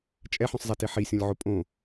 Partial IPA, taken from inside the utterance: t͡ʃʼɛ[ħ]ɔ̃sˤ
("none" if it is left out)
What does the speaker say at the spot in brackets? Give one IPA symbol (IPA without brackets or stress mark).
ħ